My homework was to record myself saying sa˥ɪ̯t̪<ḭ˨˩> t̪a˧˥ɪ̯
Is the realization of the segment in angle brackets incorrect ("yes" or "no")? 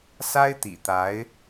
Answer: no